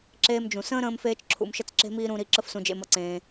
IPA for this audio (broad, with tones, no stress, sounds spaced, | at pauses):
ǁ eː˧ m d͡ʒ ũ˨ s ə̃ː˦ ɾ ə̃ː˦ m f eː˦ t͡ʃ ǁʰ ṵ˧ m ʃ ə˦ t͡s ǁ e̤˦ m iː˦ ɾ ũ˧ ɾ i˧ ǁ ə˦ f s ũ˧ d͡ʒ ḛ˧ m ʌ˧ ǀ ẽː˧